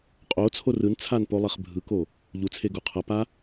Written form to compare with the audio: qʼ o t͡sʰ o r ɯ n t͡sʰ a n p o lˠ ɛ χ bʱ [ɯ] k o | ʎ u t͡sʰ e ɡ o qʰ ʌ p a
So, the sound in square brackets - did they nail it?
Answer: yes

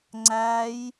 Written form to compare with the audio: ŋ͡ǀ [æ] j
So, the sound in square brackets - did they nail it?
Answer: yes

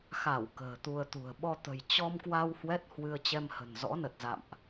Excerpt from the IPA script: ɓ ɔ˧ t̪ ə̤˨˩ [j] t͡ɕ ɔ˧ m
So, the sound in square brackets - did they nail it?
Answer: yes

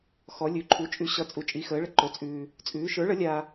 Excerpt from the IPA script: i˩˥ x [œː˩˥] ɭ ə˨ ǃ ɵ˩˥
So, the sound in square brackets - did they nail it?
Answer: no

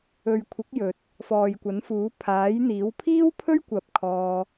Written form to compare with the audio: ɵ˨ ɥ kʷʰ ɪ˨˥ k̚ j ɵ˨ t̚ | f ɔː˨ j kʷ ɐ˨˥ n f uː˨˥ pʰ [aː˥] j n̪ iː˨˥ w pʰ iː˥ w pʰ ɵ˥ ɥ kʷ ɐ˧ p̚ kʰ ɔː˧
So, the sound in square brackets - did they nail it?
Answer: no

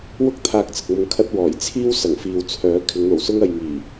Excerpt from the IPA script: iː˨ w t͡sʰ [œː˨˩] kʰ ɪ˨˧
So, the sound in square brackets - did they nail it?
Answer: no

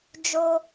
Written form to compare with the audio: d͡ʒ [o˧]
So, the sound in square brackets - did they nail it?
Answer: yes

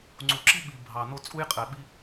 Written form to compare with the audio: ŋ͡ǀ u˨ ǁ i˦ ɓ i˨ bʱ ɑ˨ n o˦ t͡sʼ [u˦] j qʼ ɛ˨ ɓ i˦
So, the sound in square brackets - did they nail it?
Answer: yes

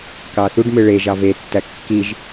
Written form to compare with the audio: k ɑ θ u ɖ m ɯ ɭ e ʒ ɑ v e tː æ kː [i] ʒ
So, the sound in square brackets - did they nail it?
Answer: yes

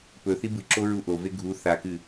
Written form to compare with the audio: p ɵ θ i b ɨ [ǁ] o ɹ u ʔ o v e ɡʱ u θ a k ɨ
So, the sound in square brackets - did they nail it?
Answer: yes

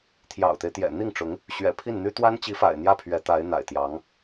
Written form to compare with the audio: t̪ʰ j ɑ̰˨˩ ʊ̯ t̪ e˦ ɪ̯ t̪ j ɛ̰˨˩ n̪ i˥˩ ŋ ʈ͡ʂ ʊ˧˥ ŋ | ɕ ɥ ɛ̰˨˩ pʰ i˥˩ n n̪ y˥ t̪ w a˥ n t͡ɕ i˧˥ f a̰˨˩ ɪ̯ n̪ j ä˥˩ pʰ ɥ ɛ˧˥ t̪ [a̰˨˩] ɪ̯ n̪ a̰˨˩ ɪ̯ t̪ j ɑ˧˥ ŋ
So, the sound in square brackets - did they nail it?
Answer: no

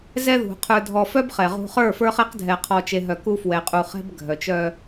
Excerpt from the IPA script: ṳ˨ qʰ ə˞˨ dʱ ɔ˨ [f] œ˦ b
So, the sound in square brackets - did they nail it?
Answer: yes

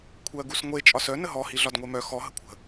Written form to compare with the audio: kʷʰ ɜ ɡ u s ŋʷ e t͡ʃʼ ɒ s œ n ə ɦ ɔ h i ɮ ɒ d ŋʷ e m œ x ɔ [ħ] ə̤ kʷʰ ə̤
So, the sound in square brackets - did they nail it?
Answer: no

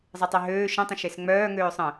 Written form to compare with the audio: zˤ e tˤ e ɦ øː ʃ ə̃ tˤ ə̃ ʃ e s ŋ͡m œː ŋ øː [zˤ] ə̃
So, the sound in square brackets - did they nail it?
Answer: no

